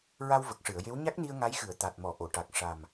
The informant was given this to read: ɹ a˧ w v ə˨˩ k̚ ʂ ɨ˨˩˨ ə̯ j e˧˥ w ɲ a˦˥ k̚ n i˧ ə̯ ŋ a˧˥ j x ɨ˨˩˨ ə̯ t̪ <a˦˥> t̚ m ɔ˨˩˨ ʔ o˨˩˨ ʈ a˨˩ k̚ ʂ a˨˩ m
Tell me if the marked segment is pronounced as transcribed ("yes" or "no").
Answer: no